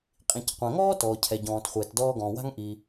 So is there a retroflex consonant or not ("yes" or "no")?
no